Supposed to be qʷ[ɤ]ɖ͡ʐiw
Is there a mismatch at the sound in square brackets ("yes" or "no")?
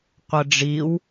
no